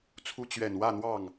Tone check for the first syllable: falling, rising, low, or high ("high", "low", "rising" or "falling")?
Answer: high